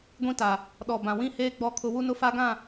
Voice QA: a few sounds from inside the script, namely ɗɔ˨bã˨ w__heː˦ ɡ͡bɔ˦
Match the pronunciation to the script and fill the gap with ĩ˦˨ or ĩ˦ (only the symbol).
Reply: ĩ˦˨